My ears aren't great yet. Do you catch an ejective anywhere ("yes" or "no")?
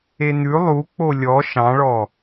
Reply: no